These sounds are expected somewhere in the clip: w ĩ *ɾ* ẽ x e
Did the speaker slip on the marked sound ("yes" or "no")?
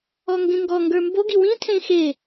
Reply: yes